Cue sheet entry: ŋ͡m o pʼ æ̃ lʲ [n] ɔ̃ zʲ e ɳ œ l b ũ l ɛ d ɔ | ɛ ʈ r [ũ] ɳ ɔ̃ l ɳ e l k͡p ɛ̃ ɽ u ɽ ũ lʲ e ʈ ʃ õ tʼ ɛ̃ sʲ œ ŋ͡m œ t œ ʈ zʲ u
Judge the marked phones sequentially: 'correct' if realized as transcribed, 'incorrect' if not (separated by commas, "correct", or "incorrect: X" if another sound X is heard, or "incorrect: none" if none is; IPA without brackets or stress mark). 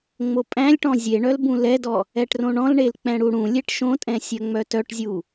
incorrect: ʈ, incorrect: õ